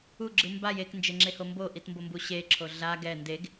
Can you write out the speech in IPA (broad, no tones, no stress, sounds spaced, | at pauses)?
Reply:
u ɡ͡ǁ ɯ m b a j e k n d͡ʒ e ŋ͡ǁ e h o m b o ʔ i t m b o m b u ɕ e ǁʰ o ɮ a ɡ ɛ n d e ɡ